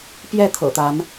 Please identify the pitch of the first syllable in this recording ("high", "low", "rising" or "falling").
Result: falling